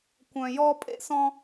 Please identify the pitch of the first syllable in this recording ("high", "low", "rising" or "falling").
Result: low